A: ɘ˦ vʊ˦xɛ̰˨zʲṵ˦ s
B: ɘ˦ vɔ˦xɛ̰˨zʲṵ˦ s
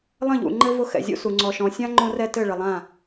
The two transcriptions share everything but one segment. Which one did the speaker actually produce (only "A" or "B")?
A